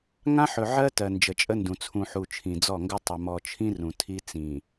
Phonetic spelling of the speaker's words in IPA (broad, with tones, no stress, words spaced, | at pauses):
ŋã˦ħɵ˨ʕɜ˦ tɜ˨nd͡ʒə˨t͡ʃʼə˦ndũ˨ t͡sʰũ˨ħu˨ t͡ʃʰĩ˨d͡zɔ˦˨ŋɡɵ˦ tˤə˨mɔ˨t͡ʃʰĩ˦ rũ˨ tʰi˦ t͡sĩ˨